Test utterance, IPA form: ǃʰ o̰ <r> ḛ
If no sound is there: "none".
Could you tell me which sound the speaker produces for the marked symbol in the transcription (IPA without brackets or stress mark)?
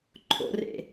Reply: r